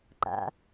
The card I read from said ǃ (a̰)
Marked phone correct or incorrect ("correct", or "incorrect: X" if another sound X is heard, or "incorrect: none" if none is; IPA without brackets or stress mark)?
correct